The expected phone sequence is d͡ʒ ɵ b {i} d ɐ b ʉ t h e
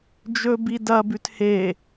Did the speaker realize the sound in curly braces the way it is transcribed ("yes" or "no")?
yes